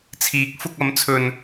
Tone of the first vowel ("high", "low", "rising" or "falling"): rising